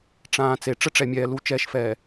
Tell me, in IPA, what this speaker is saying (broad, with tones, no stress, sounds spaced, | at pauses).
ʈ͡ʂ ãː˨ t͡s e˨ ʈ͡ʂ ə˦ ʈ͡ʂ ɛ˨ mʲ ɛː˨ l u˨˦ t͡ʃ ɛː˨ ʃ f ɛː˨